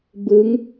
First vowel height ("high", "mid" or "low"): high